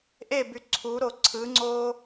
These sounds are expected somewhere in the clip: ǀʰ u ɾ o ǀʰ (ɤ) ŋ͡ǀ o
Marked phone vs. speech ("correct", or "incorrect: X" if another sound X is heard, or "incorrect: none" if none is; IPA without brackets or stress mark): incorrect: ɯ